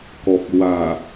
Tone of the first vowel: low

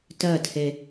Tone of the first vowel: falling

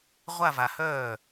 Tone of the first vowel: falling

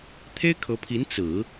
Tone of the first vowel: high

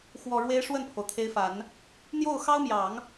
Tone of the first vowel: low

